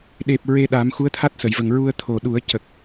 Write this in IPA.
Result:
ɗe˨˩p̚ ɹe˧ɗa˨˩˦m xu˧˥ə̯t̪ʰa˦˥t̚sə˨˩˨jvə˨˩ŋ ɹu˧ə̯t̪ʰo˨˩ɗu˨˩˦ə̯ cə˨˩k̚

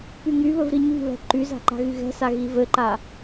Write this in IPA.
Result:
pyŋyβɵv ɾiɲi̤βɛ̤ ǃyza̤ ǃa̤ɣyɣɛ̤sa ɣivɘǃa

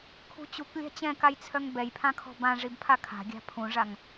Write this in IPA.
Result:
kʰṳt͡ɕuk lʲa̤t͡ɕɛ̃kajt͡sʰœŋ bɛjpʰã kʰɔ̤bã ʐibpʰakʰa̤ ɡʲa̤pʰũʐaŋ

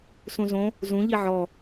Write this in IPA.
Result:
sũzõ | zũʎi ʕɔ

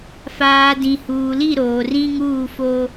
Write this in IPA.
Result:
faː˨dĩ˨ huː˨li˦˨ɾoː˨ rĩ˦ŋuː˦˨fo˦

